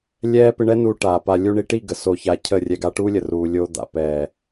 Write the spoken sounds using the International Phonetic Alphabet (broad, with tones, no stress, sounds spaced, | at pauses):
lʲ ɛː˦ p ɪ˧ ɳ ɛ˦ n u˧ ʈ aː˨ p a˨ lʲ u˧ ɳ i˧ ʈ i˦˨ ɡ ə˨ s o˧ ç a˧ cʰ ə˦˨ rʲ ɛ˧ ɡ a˦ ʈ uː˦ lʲ ə˨ r uː˨ lʲ o˧ d̪ a̰˨ p ɛː˨